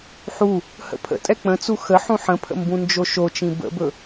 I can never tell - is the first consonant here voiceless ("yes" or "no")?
yes